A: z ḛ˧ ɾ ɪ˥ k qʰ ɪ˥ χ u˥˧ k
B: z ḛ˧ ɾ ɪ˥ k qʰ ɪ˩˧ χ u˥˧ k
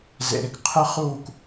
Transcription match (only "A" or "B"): A